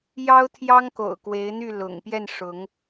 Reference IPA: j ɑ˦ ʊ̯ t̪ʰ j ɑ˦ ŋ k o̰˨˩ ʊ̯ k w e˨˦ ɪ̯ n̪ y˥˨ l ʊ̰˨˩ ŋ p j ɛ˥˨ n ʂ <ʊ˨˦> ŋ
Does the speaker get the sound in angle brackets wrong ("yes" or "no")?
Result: no